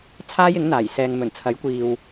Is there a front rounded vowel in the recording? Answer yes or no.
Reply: no